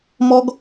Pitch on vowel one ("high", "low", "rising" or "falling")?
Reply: high